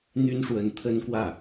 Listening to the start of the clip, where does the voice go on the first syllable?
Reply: high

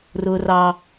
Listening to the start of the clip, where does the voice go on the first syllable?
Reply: high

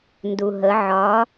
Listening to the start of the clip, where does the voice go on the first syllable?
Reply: low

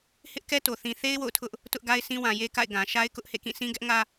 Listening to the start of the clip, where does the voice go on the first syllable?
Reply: high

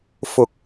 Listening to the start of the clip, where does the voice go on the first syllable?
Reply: rising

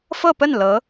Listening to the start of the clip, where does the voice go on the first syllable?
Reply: falling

